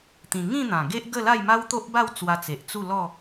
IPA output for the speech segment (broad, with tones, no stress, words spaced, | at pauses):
t̪ĩ˧ ŋĩ˥˧n̪ã˨˩ ɡe˦ʔɡə˥˧la˥˧j ma˦wt̪o˦ʔba˥˧w t͡swa˧t͡se˨ʔ t͡su˥˧lɔ˥˧